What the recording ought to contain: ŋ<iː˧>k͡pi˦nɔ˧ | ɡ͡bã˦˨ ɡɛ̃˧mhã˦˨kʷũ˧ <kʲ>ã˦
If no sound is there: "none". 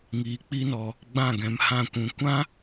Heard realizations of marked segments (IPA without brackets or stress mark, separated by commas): iː˧, kʷ